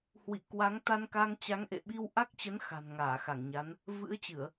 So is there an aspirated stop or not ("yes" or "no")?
no